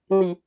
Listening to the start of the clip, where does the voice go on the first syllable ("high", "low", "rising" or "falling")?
low